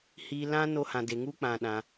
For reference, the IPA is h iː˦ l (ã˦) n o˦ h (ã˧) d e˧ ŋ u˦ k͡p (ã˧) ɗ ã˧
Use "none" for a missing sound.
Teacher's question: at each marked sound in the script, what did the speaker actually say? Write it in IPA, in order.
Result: ã˦, ã˧, ã˧

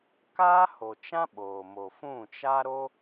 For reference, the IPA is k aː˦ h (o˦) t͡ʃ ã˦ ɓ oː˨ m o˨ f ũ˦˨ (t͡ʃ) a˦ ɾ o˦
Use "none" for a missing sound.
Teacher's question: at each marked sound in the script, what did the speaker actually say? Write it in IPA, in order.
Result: o˨, t͡ʃ

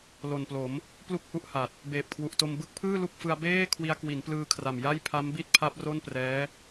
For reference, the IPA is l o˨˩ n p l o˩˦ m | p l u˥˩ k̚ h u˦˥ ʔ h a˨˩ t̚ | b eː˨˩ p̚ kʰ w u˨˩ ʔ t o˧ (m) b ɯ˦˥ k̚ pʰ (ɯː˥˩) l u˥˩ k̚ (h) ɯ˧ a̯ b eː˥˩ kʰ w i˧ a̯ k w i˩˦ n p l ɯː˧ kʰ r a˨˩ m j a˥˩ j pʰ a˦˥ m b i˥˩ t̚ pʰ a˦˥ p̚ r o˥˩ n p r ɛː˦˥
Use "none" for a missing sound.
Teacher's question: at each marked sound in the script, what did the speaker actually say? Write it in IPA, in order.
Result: m, ɯː˥˩, f

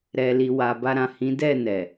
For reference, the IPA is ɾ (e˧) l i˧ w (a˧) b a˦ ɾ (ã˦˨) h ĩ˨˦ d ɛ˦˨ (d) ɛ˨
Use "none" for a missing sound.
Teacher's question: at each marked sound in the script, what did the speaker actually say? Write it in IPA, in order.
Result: ɛ˧, a˧, ã˦˨, n

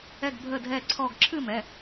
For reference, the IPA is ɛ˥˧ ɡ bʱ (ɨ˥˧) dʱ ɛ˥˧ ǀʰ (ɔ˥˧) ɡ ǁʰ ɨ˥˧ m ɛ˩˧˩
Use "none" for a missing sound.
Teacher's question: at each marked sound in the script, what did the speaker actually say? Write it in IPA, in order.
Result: ə˥˧, ɔ˥˧

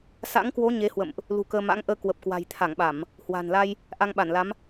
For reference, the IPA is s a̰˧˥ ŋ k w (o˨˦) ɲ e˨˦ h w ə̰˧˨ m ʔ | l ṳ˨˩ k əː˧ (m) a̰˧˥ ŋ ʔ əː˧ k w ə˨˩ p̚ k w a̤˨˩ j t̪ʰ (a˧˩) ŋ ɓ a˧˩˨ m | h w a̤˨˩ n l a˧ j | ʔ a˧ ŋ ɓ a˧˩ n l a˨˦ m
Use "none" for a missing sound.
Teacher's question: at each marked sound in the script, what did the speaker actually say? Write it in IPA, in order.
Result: o˨˦, m, a˧˩

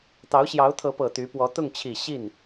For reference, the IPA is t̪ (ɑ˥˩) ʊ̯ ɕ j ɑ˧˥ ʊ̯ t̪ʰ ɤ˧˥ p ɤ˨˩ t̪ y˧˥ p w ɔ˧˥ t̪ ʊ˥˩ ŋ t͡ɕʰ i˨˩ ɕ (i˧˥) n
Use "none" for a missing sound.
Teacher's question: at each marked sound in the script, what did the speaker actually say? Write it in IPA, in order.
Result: ɑ˧˥, i˥˩

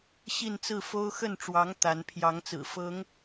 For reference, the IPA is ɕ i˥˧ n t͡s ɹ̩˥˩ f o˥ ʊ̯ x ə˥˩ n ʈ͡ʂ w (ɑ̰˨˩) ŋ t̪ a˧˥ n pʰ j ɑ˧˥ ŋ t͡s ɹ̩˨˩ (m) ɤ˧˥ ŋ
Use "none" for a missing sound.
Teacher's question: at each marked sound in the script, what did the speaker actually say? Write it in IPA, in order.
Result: ɑ˧˥, f

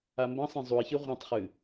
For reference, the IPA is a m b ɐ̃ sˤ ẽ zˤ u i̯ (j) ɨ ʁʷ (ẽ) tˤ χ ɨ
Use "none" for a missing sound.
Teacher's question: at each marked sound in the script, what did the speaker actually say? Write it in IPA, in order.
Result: ç, ĩ

